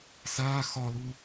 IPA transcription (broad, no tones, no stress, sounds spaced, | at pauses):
s aː x ɒ l u